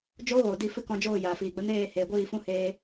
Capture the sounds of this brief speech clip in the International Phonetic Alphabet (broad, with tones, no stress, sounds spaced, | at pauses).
d͡ʒ oː˦ ɣ oː˨ d i˧ f ɨ˦ k ɔ̃˧ d͡ʒ oː˦˨ j aː˨ f iː˨ ɡ͡b ə˦ n eː˦˨ h eː˨ ɡʷ iː˦˨ f ũ˦ h eː˧